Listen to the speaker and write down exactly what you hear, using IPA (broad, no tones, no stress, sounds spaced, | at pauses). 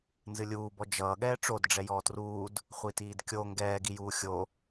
n z ɨ lʲ uː b ɔ d͡ʒ ʌː ɠ ɛː ʈ͡ʂ o d ɖ͡ʐ ɛ j ɔː t r uː d | χʷ i t iː d kʲ o ŋ ɡ ɛː ɡ i j uː xʲ o